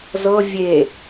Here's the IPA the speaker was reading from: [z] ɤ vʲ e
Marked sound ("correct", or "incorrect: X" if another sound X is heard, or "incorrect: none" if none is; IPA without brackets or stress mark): correct